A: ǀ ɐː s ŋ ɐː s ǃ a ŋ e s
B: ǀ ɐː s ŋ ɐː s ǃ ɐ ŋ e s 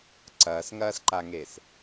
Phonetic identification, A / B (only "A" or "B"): A